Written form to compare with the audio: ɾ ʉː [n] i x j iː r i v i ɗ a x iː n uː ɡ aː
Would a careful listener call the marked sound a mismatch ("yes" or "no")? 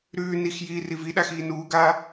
no